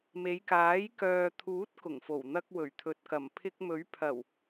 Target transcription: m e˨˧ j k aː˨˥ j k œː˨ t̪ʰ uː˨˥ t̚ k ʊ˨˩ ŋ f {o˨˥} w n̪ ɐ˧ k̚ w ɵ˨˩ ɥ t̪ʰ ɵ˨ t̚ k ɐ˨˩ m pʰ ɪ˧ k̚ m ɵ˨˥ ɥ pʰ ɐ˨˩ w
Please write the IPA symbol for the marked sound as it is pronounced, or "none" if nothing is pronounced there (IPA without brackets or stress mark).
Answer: o˨˩